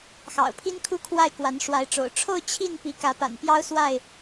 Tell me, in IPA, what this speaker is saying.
x ɑ̰˨˩ ʊ̯ pʰ i˦ n kʰ u˦ kʰ w a˥˨ ɪ̯ k w a˨˦ n ʂ w a˨˦ ɪ̯ ʈ͡ʂ o̰˨˩ ʊ̯ ʈ͡ʂʰ o˥˨ ʊ̯ t͡ɕʰ i˥˨ n p i˨˦ k ä˨˦ p a̰˨˩ n p j ɑ˦ ʊ̯ s w a˥˨ ɪ̯

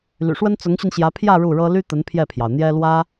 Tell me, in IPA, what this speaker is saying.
l y̰˨˩ ʂ w ə˥ n t͡s ʊ˧˥ ŋ ɕ y˧ n ɕ j ä˧˥ pʰ j ä˥˧ ɻ u˥˩ ɻ ɤ˥ l y˥ t̪ ə˧˥ n pʰ j ɛ˥˩ pʰ j ɑ˩ ʊ̯ n̪ j ɛ˥ l w ä˥

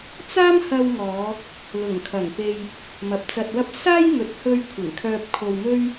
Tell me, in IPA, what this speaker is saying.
t͡s aː˥ m h ɐ˧ w ŋ ɔː˨˧ | l ʊ˨˩ ŋ kʰ ɐ˨˩ ŋ p e˧ j | m ɐ˨ p̚ t͡s ɐ˧ t̚ w ɐ˥ p̚ s aː˥ j ŋ ɵ˨ t̚ h ɵ˧ ɥ kʷʰ ɪ˨˩ ŋ kʰ œː˧ p̚ kʰ o˧ w m ɵ˥ ɥ

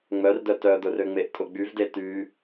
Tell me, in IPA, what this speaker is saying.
ŋ͡m œ r d œ t œ d̪ ʊ r ø ŋ͡m e ʔ tʼ ʊ ɡ͡b y v d e t y

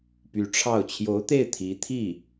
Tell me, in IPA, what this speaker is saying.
p y˧˥ ʈ͡ʂʰ ɑ˥˩ ʊ̯ t͡ɕʰ j o˧˥ ʊ̯ t̪ e˥˩ ɪ̯ t̪ʰ i˧˥ t̪ʰ i˥˩

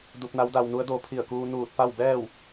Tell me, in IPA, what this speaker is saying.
d u˧ p̚ n a˧˥ w d a˧ w n u˧˥ ə̯ d o˧ pʰ i˧˩ ə̯ k uː˧ n uː˧˩ t̚ p a˥˨ w b ɛː˥˨ w

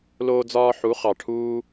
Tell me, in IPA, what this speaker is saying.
l oː˧ d͡z ɒː˧ ħ u˨˦ χ ɑ˨ ʈʰ uː˦

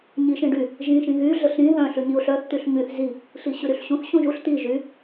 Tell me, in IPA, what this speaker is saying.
ɲ i ʃ ĩ ɖ y | ʒ ĩ ʃ ĩ ɣ y ɮ ə ɬ ɾ ĩ ð œ̃ ɬ ʉ ɲ i ʊ̯ ɬ œ θ t̪ y ɬ ɲ y θ z i | ɬ i ɕ ʉ ɾ y ɬ ɕ ũ θ ɕ ũ ʒ u ɬ t̪ i ʒ y

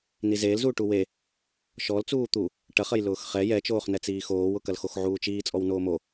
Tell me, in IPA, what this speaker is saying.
n i z eː l z uː ʈ u w e | ʃ ɔ l t͡s uː t̪ u | ʈ ɐ χ ɐ j l ʊː x χ ɛ j ɛ t͡ʃ oː χ n ɛ t͡s iː x oː w ʊ k ɐ l x o x ʕ uː t͡ʃ iː t͡sʼ ɔ w n oː m o

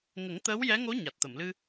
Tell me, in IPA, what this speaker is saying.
ŋ ə˨˩˦ ŋ t̪ əː˧˥ w j ɛ˧˥ ŋ o˧˥ ɲ a˨˩ t̚ t̪ ə˨˩˨ m l ɨ˧

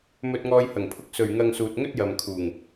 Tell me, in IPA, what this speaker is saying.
m ɵ˧ t̚ ŋ ɔː˧ j h ɐ˨˩ ŋ pʰ ʊ˧ k̚ s ɵ˨˩ ɥ ŋ ɐ˧ ŋ s uː˨ t̚ ŋ ɵ˥ t̚ j ɐ˨ m kʰ uː˨˩ ŋ

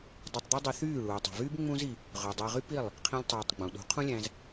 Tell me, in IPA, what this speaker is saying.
dˤ y˧ tˤ d̪ ø˦ dˤ i˧ θ yː˦˨ ɭ uː˨ tˤ i̤˨ v yː˦ b ŋ͡m ũ˦ z i˧ | ʁ ø˨ dˤ æ˧ ʁ y˦ p i˦˨ lˠ | qʰ ĩ˦ lʲ tˤ uː˧ tˤ ɡ͡b ũ˨ ɗ ṳ˨˦ qʰ ũ˦ lʲ æ̃˧ z

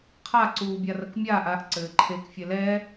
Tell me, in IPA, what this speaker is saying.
qʰ a ǀ uː bʲ a r ɐ k mʲ aː ʔ a ʔ ǀ ɘː ǃʰ e k fʲ ɛ l ɛː

